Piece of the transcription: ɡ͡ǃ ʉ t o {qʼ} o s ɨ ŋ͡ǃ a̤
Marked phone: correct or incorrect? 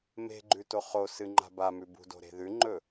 incorrect